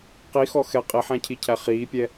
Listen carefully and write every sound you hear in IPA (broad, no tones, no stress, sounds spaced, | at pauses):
q i x ɔ x ɛ qʼ i ħ æ̃ cʰ i cʰ æ χ iː pʲ ɛ